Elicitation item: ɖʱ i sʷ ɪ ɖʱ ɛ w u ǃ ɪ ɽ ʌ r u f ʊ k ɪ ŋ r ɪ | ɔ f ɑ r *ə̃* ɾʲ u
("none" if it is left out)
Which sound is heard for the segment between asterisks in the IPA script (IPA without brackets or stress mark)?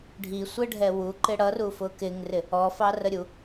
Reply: ə